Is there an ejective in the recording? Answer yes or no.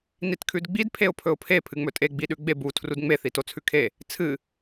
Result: yes